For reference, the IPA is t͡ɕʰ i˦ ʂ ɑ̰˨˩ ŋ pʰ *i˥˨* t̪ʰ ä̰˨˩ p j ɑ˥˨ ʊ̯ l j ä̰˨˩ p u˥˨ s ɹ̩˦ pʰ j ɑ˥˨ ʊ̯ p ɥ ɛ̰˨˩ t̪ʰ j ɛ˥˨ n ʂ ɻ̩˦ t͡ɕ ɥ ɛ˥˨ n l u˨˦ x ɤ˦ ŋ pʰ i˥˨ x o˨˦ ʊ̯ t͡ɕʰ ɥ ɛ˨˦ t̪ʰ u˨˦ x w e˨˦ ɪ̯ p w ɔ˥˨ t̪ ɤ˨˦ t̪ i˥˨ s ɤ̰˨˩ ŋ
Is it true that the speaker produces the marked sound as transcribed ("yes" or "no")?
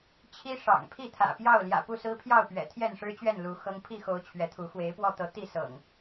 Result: yes